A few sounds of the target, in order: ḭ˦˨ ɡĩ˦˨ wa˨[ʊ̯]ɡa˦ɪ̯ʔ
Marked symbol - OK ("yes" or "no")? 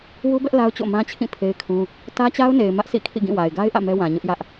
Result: no